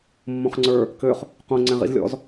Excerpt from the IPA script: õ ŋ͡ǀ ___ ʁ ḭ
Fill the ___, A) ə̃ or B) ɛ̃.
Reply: B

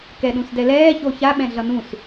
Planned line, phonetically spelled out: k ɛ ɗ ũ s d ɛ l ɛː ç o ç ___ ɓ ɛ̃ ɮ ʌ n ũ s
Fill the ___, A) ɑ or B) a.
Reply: B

